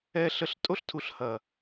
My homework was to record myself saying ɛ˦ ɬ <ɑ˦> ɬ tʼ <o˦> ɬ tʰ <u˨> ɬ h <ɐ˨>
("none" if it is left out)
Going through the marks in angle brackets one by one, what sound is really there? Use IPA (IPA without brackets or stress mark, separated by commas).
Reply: ə˦, o˦, u˨, ɐ˨